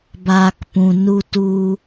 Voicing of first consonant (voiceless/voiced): voiced